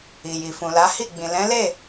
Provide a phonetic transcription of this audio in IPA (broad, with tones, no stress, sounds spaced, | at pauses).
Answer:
i˨ j i˨ f ũ˨ l a˨˦ h i˦˨ ɡ͡b ĩ˨ l ɛ̃˨˦ l e˦˨